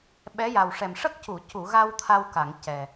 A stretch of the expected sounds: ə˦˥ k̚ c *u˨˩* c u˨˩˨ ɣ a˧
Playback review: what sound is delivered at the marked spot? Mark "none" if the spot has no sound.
u˨˩˨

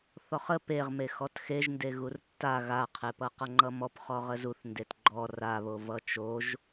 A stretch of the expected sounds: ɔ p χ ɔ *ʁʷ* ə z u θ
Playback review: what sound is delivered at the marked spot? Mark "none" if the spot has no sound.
ʁ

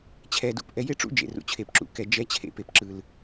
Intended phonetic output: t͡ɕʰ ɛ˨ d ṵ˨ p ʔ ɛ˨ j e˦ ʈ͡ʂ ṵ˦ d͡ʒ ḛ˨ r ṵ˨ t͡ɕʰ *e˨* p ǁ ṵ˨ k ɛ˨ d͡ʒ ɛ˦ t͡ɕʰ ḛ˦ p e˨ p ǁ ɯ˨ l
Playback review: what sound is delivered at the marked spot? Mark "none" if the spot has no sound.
e˨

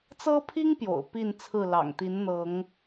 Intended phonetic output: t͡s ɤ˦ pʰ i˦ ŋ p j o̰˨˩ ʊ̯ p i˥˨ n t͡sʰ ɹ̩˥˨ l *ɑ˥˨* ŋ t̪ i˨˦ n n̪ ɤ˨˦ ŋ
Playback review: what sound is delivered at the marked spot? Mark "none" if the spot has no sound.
ɑ̰˨˩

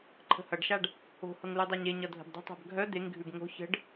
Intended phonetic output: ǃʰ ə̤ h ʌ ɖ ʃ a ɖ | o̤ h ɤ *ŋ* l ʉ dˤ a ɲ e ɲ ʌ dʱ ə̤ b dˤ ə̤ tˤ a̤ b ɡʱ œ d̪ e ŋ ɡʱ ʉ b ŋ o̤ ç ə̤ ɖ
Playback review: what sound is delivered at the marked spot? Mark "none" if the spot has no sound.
ŋ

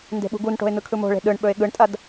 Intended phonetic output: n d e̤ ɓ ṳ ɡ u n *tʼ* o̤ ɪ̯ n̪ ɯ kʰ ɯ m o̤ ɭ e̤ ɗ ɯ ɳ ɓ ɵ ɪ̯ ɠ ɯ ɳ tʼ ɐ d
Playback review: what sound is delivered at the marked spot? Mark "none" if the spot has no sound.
ʈ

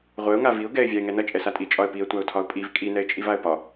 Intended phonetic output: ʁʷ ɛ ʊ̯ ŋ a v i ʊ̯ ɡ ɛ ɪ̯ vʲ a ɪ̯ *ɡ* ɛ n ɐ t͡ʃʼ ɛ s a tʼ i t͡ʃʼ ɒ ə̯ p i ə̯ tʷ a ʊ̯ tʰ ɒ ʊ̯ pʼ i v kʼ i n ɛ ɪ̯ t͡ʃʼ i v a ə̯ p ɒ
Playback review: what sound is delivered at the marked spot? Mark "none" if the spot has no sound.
ŋ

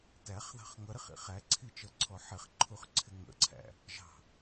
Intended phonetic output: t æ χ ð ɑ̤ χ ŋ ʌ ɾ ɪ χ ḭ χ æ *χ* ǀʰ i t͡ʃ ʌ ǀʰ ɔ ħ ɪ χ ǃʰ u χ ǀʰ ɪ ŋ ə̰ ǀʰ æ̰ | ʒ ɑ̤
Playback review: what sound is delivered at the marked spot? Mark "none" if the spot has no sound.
none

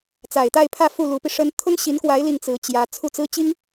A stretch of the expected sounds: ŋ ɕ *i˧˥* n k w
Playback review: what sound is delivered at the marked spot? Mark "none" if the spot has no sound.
i˧˥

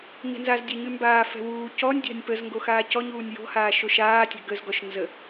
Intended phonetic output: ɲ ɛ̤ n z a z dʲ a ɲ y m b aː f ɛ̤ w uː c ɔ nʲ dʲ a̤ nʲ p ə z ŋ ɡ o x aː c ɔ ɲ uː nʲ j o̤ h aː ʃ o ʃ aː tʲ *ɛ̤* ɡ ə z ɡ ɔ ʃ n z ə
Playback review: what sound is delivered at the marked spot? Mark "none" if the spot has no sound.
ɛ̤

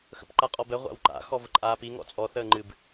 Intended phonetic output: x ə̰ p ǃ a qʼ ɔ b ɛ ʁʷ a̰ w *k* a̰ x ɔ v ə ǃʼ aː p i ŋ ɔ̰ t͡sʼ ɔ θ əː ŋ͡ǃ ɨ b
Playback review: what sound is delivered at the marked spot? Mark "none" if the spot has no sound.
ǃ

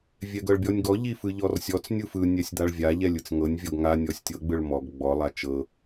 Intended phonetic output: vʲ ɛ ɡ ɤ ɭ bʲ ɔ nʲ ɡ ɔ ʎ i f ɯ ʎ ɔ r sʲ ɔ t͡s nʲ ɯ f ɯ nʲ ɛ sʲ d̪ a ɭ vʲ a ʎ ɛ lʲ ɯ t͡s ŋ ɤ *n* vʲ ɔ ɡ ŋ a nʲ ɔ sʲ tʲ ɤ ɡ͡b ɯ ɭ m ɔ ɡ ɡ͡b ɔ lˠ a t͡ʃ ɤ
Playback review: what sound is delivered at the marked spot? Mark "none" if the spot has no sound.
nʲ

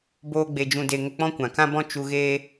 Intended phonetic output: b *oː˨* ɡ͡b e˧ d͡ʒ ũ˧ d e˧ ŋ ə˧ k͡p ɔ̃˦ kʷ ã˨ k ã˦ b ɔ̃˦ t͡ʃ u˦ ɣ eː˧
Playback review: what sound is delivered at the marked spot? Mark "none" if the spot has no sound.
oː˦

